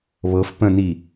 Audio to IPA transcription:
β ɤ f p ə̃ n i

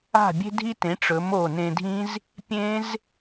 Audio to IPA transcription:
a̤˧˩ bʲ e̤˧ dʱ i˧ t ẽ˩˧ ʈ͡ʂ ɵ˩˧ m o˧˩ n ẽ˧ dʱ ĩ˦˥ z | pʲ ẽ˦˥ z

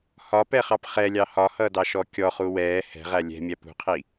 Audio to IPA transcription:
h ɒ p ɛ χ ɑ p χ ɛ lʲ ɑ h ɒ h ʌː d ɑ ʃ ɔ kʲ ɔ χ u w ɛː h ɛ̤ ʁ æ lʲ ɛ̤ mʲ æ p ṳ qʰ i

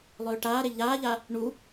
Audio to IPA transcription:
lˠ øː ʈ aː ɾ e ʎ aː ʎ a | ɳ u

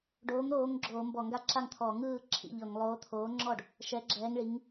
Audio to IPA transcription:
ɖ oː˨˥ ŋ ɾ oː˨˥ ŋ ɡ͡ǁ oː˧˩˧ m b ɔ˧˩˧ ŋ ɡ a˥˩ ǁ a˥˩ ŋ t̪ʰ ɔ˧˩˧ ŋ ɯː˥˩ ǁʰ ḭ˥˩ ʎ ɤ˧˩˧ ŋ lˠ oː˨˥ t̪ʰ oː˨˥ ŋ͡ǁ ɔ˥˩ ɖ | ʃ ɛ˨˥ ɡ͡ǁ ɛː˨˥ ŋ ɭ i˨˥ ŋ

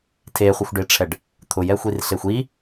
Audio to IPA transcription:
tʰ e χʷ e xʷ ɖ e ʈ͡ʂʰ ɛ ɖ | t̪ʰ ʊ j ɛ xʷ i r ɬ e xʷ i

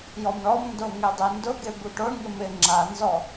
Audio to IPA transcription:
j ɔ m ɳ ɔ m n d o ŋ e dˤ e n d ʊ ɡ e b u ʈ o ɳ ŋ ɪ m ɪ ŋ͡ǁ a n z ɔ

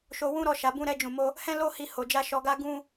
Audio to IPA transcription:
ʃ o˧ w ũ˦ ɾ ɔ˧ ʃ a˨ b ũ˧ ɾ ɛ˧ d͡ʒ ũ˨ m o˧ | h ɛ̃˦ l o˦ h i˧ h o˨ d͡ʒ a˧ ʃ ɔ˧ ɡ a˦ ɡ ũ˦

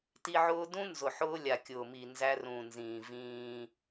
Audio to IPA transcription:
t i˦ ʕ ʊː˦ d ũ˦ n z ʊ˨ ħ ʊː˦ lʲ a˨ kʲ ʊː˨ m i˨ n z æ˦ r ũ˨ n z ĩː˨ v ĩː˦

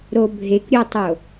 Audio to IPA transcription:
ɾ o bʱ e k ɾʲ o tˤ o

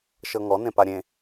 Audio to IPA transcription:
ʃ ɤ ŋ ɔ n ẽ p a ɾʲ ẽ

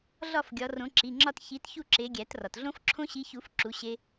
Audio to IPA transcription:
ɮ ɒ˥˨ f ɡʲ ɒ˨˦ r õ˨˦ ǁ i˩˧˩ ŋ͡ǁ ɒ˥˨ t ç i˨˦ t ç u˥˨ ǁ e˨˦ ɡʲ æ˨˩˦ t r ɒ˩ t ɮ õ˦˥ f ǁʰ õ˦˥ ɕ i˨˦ ç u˨˩˦ f ǁ u˨˦ ɕ e˦˥

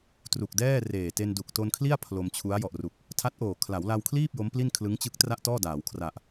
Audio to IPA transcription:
t r u˨˩ k̚ d ɛː˥˩ r eː˨˩ t e˧ n d u˨˩ k̚ t o˧ n kʰ l i˥˩ a̯ pʰ l o˧ m t͡ɕʰ u˦˥ a̯ j ɔ˨˩ ʔ r u˨˩ k̚ | tʰ a˦˥ t̚ ʔ oː˨˩ kʰ l a˩˦ w l a˧ w kʰ l iː˥˩ p̚ j o˦˥ m p l i˥˩ n kʰ l ɯ˦˥ ŋ t͡ɕ ɯ˦˥ k̚ t r a˥˩ ʔ t ɔː˥˩ d aː˩˦ w kʰ r a˨˩ ʔ

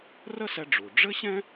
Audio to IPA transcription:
r ə˥ s ɛ˧ ɖ͡ʐ u˩ ɖ͡ʐ ɘ˥ ɕ ɛ̃˥

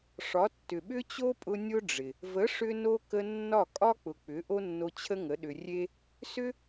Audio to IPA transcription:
ʂ ɒ˨˦ tː ʏ˨ ɓ ʏ˦ t͡ɕ o˦ pʼ ʊ˧ nʲ ʊ˦ ɖ͡ʐ ɪ˨ | v ə˨˦ ʂ ʏ˦ n o˦ k ə˧ nː ɒ˦˨ kʼ ɒ˦ k͡p ʊ˨ k͡p ʏ˨˦ ʔ o˦ nː o˧ t͡ɕʰ ə˦ ŋ ə˨˦ ɗ ʏ˨ rʲ e˦ | s ʏ˦

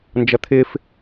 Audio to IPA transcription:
n d͡ʒ ʌ t̪ʰ ɪ f

